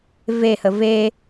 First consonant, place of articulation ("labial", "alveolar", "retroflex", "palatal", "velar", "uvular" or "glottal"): labial